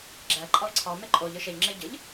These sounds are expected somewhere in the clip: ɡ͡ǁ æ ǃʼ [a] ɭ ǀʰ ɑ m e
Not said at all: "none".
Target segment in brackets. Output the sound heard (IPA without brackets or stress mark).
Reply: ɑ